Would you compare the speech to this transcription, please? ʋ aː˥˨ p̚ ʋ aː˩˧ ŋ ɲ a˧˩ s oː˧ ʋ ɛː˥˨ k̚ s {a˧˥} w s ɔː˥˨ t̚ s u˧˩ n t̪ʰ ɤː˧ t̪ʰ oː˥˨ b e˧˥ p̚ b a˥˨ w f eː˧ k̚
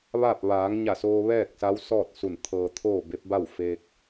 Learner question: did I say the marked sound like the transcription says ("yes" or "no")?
yes